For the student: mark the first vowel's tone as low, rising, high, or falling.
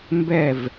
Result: falling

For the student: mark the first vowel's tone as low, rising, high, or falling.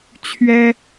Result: high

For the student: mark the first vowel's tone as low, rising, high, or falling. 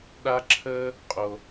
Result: high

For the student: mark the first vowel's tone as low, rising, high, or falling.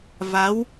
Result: rising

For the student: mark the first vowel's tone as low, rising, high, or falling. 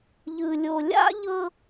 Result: low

